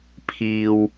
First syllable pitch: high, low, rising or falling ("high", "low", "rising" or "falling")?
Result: low